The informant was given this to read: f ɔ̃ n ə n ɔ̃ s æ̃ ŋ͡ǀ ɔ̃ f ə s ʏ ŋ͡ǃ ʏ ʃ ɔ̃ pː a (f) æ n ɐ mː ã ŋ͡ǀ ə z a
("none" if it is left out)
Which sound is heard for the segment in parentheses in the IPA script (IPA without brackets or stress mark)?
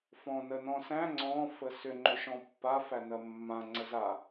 f